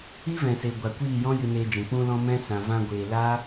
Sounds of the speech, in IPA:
i˦ v ɛ̃˨ s e˨ ɡʷ a˨ kʷ iː˦˨ j ɔ̃˦ j ɨ˧ n eː˧ d͡ʒ ɛ̃˨ k͡p ũ˧ l ɔ̃˧ m ɛ̃˦ s ã˨ v ã˧ ɡʷ eː˨ l aː˦

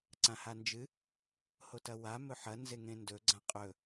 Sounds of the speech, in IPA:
ǀ ã h a n d͡ʒ ɨ | h o t ɐ w a m ɵ ħ ɐ n z e ŋ ẽ n d ɵ ɡ͡ǀ ã qʼ ɵ

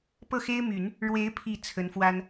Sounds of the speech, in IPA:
p ɤ˥˩ x e˥ ɪ̯ m y˨˩˦ n | ɻ w e˧˥ ɪ̯ pʰ i˨˩ t͡sʰ ə˧˥ n f w a˥ n

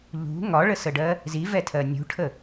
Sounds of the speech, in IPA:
ʎ ṳ ŋ ɒ ɭ ə s ə ɖ ɜ | z i v ɛ tʰ ɜ nʲ ṳ ʈʰ ə

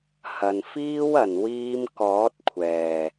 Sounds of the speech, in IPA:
h ɐ˨ n f iː˥ w ɐ˨˩ n w iː˧ m k ɔː˨˥ t̚ kʷʰ ɛː˨˩

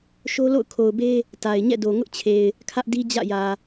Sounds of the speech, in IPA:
ʃ o˦ l o̰˦˨ ʊ̯ kʰ o˨ ʊ̯ b e˦ | t a˨ ɪ̯ ɲ ɛ̰˦˨ d o˨ ŋ ʊ˦ ʔ t͡ɕʰ e˨ ɪ̯ | kʰ ä˦ ʔ d i˦ d͡ʑ ä̰˦˨ j ä˨

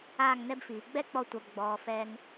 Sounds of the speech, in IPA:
aː˦˨ ŋ n ɛ˦ b f iː˨ ɡ͡b ɛ˦ k͡p ɔ˧ tʷ a˨ b ɡ͡b ɔː˨ f ɛ˧ ŋ

